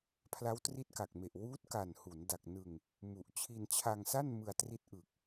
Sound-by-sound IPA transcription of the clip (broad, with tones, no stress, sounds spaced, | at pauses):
pʰ l a˦˥ w t r i˦˥ t̚ k a˨˩ k̚ m e˨˩ ʔ w uː˦˥ t̚ k a˨˩ n h u˩˦ n d a˨˩ k̚ n ɯ˧ ŋ | m u˨˩ ʔ t͡ɕʰ i˧ n t͡ɕʰ a˧ ŋ s a˥˩ n m ɯ˧ a̯ t r i˦˥ t̚ ʔ ɯ˨˩ k̚